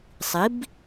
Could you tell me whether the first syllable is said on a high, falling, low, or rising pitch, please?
rising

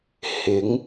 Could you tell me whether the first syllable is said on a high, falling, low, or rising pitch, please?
rising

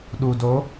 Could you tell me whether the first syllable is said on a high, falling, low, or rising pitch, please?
low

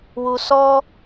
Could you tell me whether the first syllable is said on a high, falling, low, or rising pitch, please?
low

